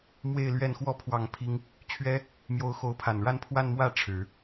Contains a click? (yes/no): no